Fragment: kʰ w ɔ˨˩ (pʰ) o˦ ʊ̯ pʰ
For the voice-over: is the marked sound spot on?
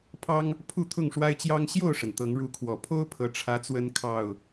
yes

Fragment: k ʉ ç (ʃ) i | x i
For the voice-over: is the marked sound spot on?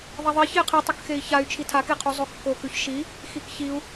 yes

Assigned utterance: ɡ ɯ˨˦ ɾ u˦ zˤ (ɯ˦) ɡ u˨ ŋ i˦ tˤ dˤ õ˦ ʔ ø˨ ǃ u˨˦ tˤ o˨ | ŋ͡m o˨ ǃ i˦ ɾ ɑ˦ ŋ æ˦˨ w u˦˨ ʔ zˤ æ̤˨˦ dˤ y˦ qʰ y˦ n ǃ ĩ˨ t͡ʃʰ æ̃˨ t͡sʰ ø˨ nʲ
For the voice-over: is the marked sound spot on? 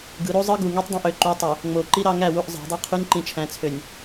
yes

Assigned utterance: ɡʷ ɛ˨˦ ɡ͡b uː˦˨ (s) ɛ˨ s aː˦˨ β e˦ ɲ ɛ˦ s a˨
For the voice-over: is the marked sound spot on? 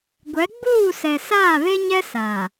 yes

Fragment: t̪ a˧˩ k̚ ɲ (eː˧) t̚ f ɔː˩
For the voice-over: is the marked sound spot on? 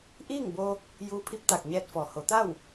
no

